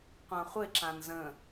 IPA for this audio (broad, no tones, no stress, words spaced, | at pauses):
qʷãχʷɪ ǁãnzə̃